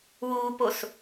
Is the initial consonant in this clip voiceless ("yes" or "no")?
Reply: no